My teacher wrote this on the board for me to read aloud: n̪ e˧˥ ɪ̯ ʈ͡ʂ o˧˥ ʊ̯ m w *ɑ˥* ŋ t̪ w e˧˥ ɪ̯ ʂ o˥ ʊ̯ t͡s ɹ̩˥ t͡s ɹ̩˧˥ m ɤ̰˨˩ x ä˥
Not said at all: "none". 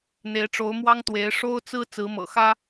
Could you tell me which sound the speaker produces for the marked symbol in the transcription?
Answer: ɑ˥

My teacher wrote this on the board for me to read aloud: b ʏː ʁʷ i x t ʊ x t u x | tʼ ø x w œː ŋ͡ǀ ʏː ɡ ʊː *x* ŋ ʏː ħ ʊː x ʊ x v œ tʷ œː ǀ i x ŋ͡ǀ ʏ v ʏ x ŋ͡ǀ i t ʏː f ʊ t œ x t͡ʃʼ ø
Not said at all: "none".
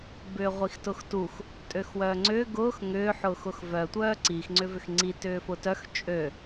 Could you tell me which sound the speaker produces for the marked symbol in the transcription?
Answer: x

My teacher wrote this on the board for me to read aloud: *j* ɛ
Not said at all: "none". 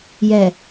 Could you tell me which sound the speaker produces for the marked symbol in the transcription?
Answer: j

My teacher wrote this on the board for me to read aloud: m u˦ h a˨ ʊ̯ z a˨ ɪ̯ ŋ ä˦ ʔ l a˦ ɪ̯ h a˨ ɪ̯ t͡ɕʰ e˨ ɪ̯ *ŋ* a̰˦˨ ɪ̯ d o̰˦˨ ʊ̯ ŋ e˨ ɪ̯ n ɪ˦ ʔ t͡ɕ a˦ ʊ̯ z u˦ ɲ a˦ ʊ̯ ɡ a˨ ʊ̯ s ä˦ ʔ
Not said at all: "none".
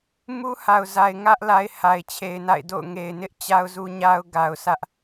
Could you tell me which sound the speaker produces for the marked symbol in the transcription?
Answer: n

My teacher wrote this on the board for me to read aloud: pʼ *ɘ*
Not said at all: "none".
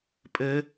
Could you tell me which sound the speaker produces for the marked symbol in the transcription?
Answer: ɘ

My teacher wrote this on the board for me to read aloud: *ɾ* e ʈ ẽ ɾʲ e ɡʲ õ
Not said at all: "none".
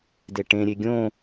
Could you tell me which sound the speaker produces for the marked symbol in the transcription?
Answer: d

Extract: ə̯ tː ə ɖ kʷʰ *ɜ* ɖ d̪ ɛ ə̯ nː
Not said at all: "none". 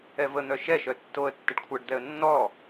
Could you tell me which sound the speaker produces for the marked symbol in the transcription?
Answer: ɜ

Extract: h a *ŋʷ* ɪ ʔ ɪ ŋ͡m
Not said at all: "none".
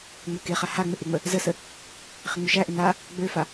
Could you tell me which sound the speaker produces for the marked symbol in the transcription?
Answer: ŋ͡m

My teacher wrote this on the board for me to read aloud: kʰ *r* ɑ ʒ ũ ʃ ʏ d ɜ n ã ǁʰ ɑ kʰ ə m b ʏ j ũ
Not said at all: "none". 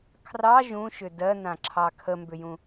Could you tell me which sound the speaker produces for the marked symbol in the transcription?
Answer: r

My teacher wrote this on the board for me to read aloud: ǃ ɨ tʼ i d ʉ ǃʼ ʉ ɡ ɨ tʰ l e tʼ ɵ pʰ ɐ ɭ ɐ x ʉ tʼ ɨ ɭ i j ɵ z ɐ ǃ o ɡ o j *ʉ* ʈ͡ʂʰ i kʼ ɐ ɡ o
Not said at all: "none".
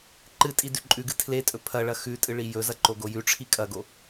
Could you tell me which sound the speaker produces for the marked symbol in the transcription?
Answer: ʉ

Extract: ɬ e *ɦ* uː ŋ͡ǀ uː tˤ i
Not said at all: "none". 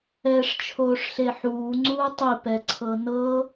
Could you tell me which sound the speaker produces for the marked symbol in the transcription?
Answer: ħ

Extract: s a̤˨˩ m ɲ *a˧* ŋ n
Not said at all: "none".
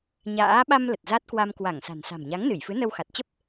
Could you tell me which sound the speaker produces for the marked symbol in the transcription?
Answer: a˨˦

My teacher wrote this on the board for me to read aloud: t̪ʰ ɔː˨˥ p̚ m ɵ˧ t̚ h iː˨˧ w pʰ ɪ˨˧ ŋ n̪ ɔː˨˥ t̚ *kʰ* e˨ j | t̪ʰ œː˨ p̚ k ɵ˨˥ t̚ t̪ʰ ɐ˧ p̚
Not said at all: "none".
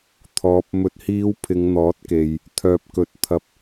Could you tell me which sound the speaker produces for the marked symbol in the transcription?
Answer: k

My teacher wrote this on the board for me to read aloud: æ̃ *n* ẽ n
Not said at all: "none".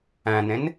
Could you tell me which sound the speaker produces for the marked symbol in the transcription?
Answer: n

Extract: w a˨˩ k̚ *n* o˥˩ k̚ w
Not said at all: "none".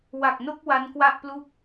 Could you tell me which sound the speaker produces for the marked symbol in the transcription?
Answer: n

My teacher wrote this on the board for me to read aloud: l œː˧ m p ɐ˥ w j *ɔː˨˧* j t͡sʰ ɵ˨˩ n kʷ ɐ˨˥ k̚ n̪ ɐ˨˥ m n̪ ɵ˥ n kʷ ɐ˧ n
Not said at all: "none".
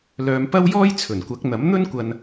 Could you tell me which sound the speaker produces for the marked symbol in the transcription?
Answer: ɔː˥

